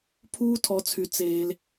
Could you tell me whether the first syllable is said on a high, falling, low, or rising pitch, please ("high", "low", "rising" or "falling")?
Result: high